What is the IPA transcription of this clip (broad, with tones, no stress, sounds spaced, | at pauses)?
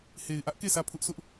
h e˨ ɪ̯ ʔ ä˦ ʔ k e˦˨ sʰ ä˦˨ pʰ ʊ˦ ʔ sʰ ʊ˦ ʔ